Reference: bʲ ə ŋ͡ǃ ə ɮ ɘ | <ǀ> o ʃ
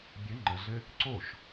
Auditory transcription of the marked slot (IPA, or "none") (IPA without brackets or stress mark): ǀ